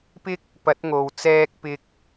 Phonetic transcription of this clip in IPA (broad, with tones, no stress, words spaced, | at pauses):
pɪ˥k̚ | pɐ˨˥t̚ŋo˨w t͡sɛː˥k̚pɪ˥k̚